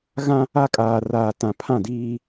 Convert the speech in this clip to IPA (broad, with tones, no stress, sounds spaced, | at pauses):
ɣ ã˦ | a˨ kʼ aː˨ r aː˨ t ã˨ pʰ ã˦˨ d iː˦